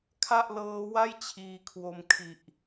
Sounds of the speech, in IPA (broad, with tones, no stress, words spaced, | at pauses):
kʰa˥˩ʔlɤː˦˥wa˥˩j t͡ɕʰiː˧kʰwo˧m kʰi˨˩ʔ